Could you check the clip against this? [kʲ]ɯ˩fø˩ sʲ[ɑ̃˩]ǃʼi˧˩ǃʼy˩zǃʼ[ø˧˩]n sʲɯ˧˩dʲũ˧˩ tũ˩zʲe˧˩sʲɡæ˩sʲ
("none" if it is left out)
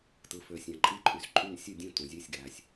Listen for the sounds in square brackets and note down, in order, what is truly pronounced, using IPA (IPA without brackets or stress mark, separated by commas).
t, ɑ̃˩, y˧˩